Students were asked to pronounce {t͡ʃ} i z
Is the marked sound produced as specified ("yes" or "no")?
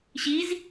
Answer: no